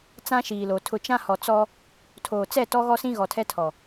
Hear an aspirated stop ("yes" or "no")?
yes